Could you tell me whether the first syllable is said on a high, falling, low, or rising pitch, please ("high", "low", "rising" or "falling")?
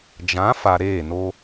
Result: rising